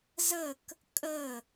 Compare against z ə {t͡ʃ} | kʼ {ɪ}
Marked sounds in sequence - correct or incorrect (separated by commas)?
incorrect, incorrect